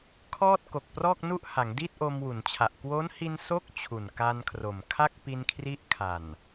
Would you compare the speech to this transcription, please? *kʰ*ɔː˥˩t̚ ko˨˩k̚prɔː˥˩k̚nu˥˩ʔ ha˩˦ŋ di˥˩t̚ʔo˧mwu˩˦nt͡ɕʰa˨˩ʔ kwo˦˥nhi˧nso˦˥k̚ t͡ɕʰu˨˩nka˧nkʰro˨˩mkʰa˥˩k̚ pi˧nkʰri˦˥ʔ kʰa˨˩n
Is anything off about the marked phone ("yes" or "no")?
no